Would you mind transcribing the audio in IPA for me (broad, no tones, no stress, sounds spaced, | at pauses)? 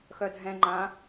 x œ dʱ ɛ̃ ŋ͡ǃ ã